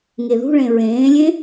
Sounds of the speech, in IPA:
ŋ e ð ṳ ɭ ẽ ɹ ẽː lʲ ẽ

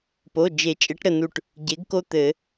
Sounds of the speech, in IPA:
p o˩˧˩ d͡ʒ e˨˩˦ t͡ʃʼ ɘ˩˥ ʈ ɾ ə˧˩ n u˧˩ ʈ | ɟ e˩˥ ɡ k o˦ t̪ ɘ˨˩˦

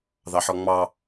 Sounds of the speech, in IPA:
ð ɑ ħ ɔ ŋ͡m ɑ

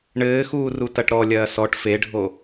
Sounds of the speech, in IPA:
ɳ ɘː x uː r u t ɐ ʈ ɾ ɔ lʲ ɐː s ɔ ʈ f e ɖʱ o

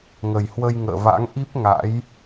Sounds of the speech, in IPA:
ŋ ə˨˩ j h w ə˧ j ŋ ə̰ː˧˨ v a̰˧˥ ŋ ʔ i˦˥ p̚ ŋ a̰˧˥ j

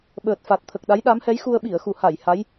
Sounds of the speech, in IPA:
ɓ əː˨˩ t̚ f a˨˩ t̚ t̪ʰ ə˨˩ k̚ ɗ a˧˥ j ɗ a˧˥ m h ɛ˧˥ j x u˧ ə̯ ɓ i˨˩˨ ə̯ x u˨˩˨ h a˨˩˨ j h a˧˥ j

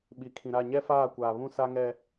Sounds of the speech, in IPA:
ɓ i˨ kʰ ĩ˨ ɾ a˦˨ ɲ ɛ˦ f aː˦˨ kʷ aː˨ β ũ˦ s a˦ ŋ ɛ˦

